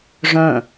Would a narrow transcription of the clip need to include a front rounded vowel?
yes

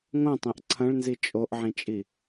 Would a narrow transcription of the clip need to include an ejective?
yes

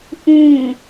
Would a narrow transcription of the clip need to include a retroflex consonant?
no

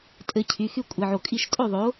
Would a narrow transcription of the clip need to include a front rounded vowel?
yes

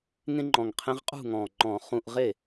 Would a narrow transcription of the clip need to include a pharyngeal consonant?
no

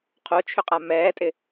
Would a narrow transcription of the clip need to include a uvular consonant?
yes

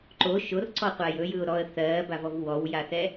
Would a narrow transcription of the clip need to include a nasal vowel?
no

